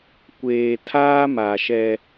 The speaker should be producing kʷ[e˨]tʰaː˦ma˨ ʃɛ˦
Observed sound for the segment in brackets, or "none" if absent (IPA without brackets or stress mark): eː˨